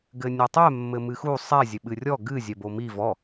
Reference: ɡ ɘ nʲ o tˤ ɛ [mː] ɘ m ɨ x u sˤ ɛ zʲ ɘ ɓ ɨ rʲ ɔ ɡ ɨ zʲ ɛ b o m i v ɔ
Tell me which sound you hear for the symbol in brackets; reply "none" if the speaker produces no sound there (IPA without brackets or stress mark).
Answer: mː